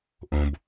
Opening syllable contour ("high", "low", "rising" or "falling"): low